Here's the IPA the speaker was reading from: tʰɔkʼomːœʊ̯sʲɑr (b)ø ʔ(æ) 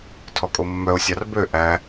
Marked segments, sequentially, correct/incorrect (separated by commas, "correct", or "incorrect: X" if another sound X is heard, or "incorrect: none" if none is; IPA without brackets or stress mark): correct, correct